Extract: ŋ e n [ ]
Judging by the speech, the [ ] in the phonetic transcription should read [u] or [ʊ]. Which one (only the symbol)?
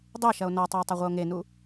u